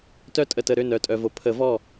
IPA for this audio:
t œ˧˥ tʼ ə˨ t ə˨ ɾ ø˦˨ n œ˨ tʼ œ˨ v o˨ pʰ ə˨˩˦ v ɔ˦˨

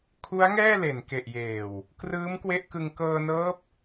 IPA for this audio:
kʰ u˦˥ a̯ ŋ ɛː˥˩ l e˨˩ n k e˨˩ ʔ j eː˨˩ w | k r ɯː˦˥ m k w e˦˥ ʔ k ɯ˧ ŋ k ɤː˧ n ɤː˦˥ p̚

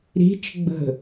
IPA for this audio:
ɾ i̤ t͡ʃ ɡ͡b ə̤

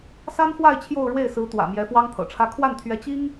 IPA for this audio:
s a˥ n x w a˥˧ ɪ̯ t͡ɕʰ j o˥˧ ʊ̯ ɻ w e˥˩ ɪ̯ s ɹ̩˧˥ t̪ w ä̰˨˩ m j ɛ˧˥ f w ɑ˥ ŋ t̪ʰ ɤ̰˨˩ ʈ͡ʂʰ ä˥ kʰ w a˥˩ n t̪ʰ ɥ ɛ˧˥ t͡ɕ i˥ ŋ

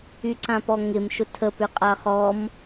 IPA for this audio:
y ǀ ã p ɔ ŋ ɪ m ʃ ʊ tʰ ə p ʏ qʼ a χ ɔ m

